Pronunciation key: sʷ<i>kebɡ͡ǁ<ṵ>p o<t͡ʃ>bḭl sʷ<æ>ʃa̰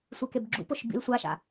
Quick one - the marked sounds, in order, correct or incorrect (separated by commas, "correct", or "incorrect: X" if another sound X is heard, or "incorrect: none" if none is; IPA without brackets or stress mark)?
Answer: correct, correct, incorrect: ʃ, incorrect: a